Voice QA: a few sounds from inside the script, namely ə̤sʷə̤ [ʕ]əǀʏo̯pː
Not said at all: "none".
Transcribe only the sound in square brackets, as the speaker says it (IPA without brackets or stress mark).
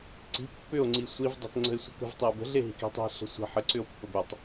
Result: ħ